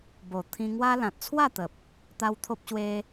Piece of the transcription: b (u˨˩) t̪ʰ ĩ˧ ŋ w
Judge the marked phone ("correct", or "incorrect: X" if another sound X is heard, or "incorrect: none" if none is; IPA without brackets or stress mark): incorrect: o˨˩